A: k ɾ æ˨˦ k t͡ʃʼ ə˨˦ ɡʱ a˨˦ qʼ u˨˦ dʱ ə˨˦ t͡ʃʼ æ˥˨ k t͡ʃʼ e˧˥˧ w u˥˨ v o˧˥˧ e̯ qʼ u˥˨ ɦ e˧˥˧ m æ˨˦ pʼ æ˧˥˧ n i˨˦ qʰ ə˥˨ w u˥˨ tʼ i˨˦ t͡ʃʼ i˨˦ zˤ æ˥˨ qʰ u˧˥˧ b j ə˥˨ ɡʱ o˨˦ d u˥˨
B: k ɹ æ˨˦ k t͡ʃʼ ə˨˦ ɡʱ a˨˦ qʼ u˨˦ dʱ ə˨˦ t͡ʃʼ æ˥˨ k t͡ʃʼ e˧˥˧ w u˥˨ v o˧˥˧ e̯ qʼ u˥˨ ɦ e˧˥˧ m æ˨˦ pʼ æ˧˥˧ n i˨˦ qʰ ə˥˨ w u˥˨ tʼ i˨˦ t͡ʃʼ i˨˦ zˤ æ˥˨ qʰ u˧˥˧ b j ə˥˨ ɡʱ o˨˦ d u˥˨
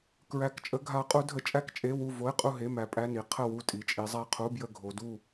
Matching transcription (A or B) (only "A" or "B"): B